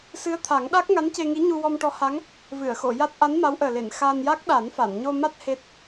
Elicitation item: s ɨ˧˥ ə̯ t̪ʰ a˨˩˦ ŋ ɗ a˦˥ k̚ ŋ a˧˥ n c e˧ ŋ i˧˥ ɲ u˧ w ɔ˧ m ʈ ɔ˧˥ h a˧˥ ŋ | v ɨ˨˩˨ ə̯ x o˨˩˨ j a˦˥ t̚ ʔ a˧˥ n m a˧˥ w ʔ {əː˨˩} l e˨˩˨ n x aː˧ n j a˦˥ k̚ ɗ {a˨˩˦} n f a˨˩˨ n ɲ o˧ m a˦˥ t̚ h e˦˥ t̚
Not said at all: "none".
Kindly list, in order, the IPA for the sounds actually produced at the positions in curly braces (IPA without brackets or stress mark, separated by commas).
əː˨˩, a˨˩˦